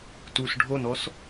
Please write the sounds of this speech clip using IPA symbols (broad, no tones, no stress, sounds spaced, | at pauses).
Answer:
t u s ɖʱ o n ɔ s